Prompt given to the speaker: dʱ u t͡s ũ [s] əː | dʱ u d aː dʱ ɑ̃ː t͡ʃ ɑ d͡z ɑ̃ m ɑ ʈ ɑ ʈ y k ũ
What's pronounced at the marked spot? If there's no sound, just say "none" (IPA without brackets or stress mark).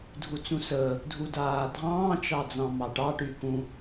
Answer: s